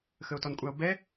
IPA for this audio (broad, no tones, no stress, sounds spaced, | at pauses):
x ə o̯ t ɔ n kʷʼ a o̯ b ɛ